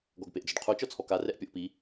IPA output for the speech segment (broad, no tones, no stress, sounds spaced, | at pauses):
ɡ ɔ ɡ p e ʔ d͡z ʊ ɖ qʰ u t͡ʃ ɔ t͡sʰ ɔ k a r ɛ ʔ pʲ ɔ ʔ p i